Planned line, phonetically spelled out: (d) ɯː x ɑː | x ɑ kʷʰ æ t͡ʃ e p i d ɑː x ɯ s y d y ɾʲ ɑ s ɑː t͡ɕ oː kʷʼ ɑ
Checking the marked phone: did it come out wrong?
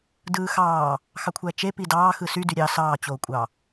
no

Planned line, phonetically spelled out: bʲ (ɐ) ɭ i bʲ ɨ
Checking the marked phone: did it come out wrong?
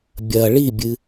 no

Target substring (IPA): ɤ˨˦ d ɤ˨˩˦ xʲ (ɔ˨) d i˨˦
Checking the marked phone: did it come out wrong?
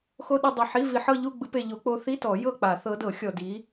no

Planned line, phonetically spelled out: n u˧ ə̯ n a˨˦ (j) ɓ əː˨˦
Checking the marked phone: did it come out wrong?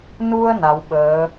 yes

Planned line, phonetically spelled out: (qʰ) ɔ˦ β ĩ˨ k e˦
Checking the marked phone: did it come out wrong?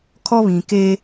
yes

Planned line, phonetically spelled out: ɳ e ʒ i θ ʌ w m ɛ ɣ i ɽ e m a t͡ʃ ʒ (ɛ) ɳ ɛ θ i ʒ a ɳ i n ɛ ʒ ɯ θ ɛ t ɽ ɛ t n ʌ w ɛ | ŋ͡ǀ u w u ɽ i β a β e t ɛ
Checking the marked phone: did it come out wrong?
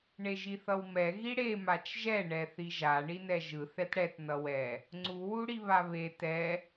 no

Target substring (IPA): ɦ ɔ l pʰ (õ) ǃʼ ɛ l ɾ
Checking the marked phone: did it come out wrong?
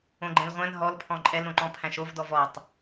yes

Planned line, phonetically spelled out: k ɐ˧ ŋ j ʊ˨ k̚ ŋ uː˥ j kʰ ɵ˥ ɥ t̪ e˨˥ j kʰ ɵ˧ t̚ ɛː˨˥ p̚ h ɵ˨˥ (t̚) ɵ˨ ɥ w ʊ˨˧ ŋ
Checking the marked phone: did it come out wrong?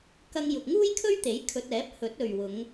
no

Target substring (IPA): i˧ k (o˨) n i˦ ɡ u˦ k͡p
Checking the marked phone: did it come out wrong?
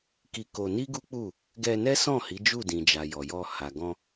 yes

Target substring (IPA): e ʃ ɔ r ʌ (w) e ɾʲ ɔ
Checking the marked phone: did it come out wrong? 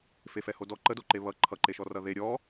yes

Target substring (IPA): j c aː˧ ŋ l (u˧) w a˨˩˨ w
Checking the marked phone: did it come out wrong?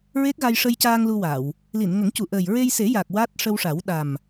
no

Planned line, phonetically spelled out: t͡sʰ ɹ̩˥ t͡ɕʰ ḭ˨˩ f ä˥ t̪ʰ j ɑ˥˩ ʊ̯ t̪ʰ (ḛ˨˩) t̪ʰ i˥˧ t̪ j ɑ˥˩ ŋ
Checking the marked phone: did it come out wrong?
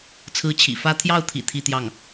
yes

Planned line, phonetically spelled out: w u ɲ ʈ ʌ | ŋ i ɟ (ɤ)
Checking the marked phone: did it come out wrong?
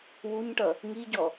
yes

